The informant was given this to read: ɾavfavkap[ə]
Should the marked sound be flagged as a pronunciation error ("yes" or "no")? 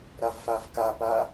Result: yes